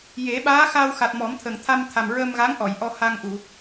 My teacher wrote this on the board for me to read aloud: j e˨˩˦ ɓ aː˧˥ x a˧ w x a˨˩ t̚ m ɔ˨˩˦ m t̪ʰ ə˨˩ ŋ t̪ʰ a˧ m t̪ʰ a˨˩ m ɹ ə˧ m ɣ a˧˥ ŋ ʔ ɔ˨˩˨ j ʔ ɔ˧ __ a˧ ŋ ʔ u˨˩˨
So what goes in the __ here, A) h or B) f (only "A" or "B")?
A